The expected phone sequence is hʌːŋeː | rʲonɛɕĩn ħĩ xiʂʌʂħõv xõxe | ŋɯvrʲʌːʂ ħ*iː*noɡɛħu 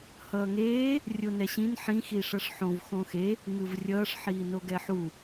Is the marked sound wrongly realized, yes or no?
no